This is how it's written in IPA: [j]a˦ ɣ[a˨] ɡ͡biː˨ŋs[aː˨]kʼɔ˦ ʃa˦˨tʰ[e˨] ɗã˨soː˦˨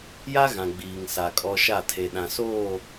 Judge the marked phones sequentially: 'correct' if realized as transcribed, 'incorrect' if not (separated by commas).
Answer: correct, incorrect, incorrect, correct